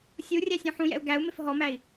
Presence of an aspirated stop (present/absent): absent